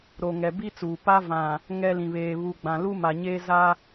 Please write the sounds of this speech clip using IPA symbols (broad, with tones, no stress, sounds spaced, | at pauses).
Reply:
ɾ o˨ ŋ ɛ˨ b i˦ t͡s uː˨ p a˦ v ã˨ | ŋ ɛ˦ l ĩ˨ β eː˨ β u˨ ɡ͡b ã˨ l u˦ m a˨ ɲ eː˦ z a˦